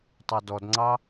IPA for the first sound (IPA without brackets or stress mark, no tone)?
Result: tˤ